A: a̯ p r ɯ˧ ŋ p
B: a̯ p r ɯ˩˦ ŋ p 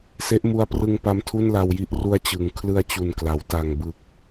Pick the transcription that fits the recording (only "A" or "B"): A